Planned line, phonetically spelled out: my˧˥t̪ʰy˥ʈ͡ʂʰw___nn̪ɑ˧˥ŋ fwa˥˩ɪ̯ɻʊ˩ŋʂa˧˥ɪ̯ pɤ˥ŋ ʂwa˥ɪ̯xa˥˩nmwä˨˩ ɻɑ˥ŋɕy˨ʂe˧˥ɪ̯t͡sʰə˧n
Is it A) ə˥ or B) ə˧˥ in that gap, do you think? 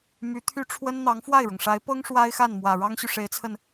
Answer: A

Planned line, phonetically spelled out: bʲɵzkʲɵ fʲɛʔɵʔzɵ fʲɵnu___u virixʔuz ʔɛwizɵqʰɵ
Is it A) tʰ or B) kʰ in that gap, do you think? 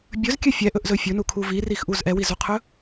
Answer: B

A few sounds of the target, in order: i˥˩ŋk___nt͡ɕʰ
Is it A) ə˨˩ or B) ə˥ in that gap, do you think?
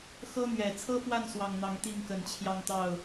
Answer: A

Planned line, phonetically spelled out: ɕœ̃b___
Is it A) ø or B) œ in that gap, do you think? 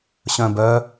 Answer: B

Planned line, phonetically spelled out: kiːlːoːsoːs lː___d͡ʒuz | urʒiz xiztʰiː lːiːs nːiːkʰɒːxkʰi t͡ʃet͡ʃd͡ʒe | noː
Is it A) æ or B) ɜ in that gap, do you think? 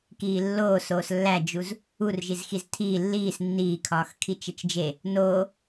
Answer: A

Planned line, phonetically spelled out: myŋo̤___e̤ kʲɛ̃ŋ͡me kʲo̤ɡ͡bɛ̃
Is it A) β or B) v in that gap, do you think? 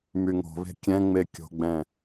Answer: A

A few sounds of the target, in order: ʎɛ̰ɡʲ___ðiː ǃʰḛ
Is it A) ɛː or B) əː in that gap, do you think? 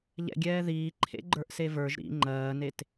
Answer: A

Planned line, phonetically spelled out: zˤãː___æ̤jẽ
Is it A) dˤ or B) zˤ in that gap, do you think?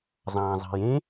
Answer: B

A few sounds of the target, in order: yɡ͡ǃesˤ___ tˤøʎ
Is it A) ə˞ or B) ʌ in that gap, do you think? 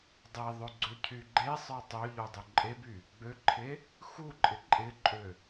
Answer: A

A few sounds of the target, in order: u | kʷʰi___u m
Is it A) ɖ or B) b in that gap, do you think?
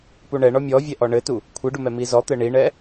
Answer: A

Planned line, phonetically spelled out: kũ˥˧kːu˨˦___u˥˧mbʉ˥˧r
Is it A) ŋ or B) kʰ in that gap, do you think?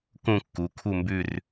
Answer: B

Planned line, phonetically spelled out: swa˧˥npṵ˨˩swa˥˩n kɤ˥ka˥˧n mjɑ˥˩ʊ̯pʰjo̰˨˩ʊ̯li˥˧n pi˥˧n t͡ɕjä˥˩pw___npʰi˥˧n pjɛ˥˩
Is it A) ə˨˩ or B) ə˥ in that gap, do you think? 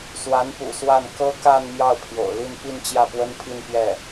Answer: B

